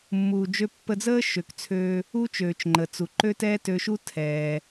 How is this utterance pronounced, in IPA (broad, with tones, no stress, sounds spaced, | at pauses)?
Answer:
mː uː˩ d͡ʒ ø˧ pː ə˧ d͡z əː˥ ʃ ø˩ k t͡sʰ øː˧ | u˥ t͡ʃ øː˩ t͡ʃ ŋ͡ǃ ə˩ t͡s u˩ ǃ ø˥ t ɛː˥ t ø˧ ʃ u˥ tʰ ɛː˩